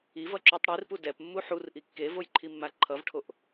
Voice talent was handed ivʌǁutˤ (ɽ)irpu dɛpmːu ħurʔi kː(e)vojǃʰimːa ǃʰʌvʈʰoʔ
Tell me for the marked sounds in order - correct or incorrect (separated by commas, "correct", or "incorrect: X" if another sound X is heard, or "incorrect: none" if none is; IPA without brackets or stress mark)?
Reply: correct, correct